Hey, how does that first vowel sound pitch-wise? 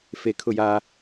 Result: low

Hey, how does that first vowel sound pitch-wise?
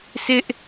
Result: high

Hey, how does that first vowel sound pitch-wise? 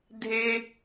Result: high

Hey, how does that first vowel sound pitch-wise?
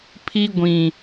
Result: high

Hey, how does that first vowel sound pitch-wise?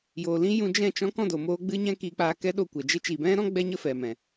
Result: low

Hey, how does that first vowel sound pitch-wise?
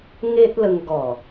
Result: high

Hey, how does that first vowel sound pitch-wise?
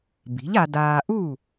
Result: rising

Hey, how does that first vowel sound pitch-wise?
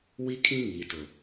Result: high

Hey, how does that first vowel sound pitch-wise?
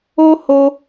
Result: high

